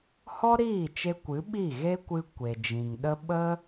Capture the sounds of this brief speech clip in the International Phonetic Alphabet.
hɔ˦ɾiː˦˨t͡ʃe˧ kʷɨ˨˦ɓi˦˨ɣe˦kʷɨ˧ kʷe˨ d͡ʒĩ˨ŋɗə˦ ɓə˦

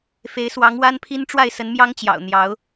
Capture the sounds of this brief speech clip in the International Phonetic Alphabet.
fe˧˥ɪ̯swɑ˧˥ŋwa˥npʰi˥n ʈ͡ʂwa˥˩ɪ̯sə˧˥nmjɑ˥ŋt͡ɕjɑ̰˨˩ʊ̯ n̪jɑ˧˥ʊ̯

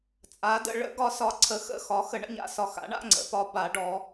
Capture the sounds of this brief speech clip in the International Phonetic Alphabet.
t͡sʼa˨˥də̰˨˥ ɭə̰˨˥ ɡɒ˨˥sɒ˨˥ ǀʰə˨˥xə̰˧˥˧ xɒ˨˥xə˨˥ ɳə̰˧˥˧ɲa̰˧˥˧sɒ˧˥˧ xa̰˨˥ ɳa̰˧˥˧ŋ͡ǀə̰˨˥ pɒ˨˥ba˨˥ɖɔ˨˥

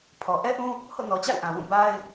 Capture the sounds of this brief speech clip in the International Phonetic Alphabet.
pʰɔ˨ ʔɛ˦ʔũ˦ | ho̰˦˨nɔ˨t͡ɕa̰˦˨ɪ̯ ʔã˨wũ˦˨ ba˦ɪ̯

